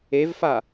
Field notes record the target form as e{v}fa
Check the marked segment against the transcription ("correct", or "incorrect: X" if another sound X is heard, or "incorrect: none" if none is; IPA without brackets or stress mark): correct